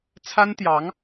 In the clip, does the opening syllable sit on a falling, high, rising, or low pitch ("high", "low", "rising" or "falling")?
high